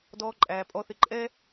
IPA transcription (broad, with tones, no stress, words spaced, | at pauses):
dɔː˨ǃʼæː˩pʼɔ˨θɪ˨ ǃʼɛ˦